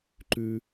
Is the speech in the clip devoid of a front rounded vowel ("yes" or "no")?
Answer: yes